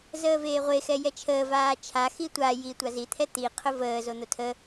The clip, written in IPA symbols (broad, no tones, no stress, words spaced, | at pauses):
zəːveːʁʷe xɛjɛt͡ʃʰəː vaːt͡ʃʰa xitʷa ji tʷazi t̪ʰɛt̪i qʰʊvəː zon̪otʰə